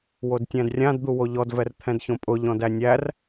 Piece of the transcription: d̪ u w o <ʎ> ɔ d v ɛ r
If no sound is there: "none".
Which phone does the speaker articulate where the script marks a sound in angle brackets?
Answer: ʎ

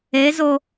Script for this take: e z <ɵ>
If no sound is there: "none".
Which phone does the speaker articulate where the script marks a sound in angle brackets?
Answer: o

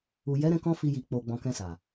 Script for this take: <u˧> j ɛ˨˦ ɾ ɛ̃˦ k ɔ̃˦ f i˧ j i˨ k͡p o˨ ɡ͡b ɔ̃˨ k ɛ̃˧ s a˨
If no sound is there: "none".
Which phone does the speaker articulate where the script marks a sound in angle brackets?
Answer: u˨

